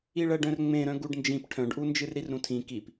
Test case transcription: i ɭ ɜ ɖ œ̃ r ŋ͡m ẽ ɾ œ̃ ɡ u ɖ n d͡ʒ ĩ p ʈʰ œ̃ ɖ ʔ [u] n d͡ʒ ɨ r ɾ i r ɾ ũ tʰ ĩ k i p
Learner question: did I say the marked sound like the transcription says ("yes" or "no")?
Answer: yes